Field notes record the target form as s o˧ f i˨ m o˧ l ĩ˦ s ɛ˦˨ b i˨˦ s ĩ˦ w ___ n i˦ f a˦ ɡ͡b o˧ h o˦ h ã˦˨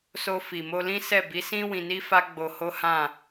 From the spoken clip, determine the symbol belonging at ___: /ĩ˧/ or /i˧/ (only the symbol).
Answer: ĩ˧